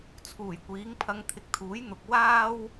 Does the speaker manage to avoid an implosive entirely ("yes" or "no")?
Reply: yes